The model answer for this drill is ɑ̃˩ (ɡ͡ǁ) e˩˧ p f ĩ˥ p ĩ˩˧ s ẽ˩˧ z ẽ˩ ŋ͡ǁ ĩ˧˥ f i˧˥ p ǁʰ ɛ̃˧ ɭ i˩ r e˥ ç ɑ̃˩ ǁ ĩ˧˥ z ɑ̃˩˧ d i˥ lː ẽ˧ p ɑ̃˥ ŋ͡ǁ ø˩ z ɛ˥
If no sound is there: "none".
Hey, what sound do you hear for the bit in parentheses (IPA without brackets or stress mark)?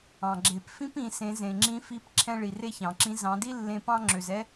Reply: ɡ͡ǁ